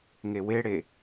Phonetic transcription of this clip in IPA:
ŋeweɽe

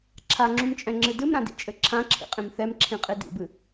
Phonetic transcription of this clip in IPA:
ǁʰaŋ͡ǁũmt͡ʃʼɛ̃ŋ͡ǁɨ dɨmɾãdḭt͡ʃʼɘ ǁʰãǁʰḭqʼĩm θɛmǁʰĩqʼi dḭbɨ

